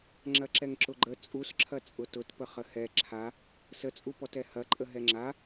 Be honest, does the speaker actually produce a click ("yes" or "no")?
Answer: yes